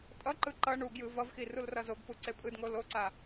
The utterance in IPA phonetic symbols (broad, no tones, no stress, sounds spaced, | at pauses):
tʼ ʌ ǃ ɯ ǃ ʌ ɳ u ɡ j ɯ v ʌ v x i r u l r ʌ z o ɡ p u ǀ e pʼ ɯ d ŋ o l o ǀ a